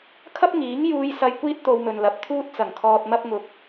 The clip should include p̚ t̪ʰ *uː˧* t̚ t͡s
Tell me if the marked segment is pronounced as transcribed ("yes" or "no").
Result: yes